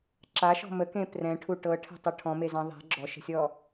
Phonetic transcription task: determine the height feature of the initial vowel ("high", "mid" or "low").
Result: low